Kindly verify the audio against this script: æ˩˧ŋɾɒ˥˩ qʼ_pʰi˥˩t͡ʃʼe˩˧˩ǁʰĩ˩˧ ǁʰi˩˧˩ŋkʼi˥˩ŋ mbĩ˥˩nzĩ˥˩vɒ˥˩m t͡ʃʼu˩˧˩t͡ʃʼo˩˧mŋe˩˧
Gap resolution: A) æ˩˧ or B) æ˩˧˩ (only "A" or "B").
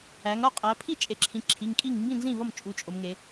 A